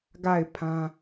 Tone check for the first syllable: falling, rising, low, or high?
falling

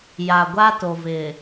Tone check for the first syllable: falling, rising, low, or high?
low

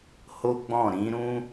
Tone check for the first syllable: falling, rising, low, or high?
high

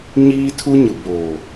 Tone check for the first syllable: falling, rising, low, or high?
high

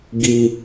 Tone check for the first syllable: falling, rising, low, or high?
high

